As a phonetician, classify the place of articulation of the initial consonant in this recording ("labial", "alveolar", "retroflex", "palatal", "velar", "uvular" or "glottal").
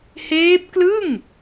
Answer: glottal